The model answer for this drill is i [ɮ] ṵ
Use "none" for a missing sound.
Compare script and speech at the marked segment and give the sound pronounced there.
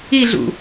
ɮ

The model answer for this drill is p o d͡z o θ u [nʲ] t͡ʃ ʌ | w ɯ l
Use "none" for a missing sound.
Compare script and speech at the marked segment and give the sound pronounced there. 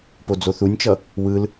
nʲ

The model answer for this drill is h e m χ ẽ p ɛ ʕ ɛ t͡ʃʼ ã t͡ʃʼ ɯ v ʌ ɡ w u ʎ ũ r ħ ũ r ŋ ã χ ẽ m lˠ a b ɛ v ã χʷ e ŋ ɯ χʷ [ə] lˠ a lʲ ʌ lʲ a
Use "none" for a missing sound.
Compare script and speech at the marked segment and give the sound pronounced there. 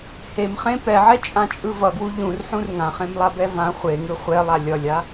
ɛ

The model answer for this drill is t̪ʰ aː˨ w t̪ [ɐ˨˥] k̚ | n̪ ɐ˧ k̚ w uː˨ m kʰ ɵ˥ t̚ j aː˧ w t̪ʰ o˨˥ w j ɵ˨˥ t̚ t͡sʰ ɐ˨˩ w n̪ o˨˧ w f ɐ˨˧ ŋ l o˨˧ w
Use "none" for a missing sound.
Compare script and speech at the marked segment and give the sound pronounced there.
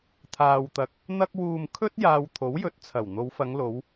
ɐ˨˥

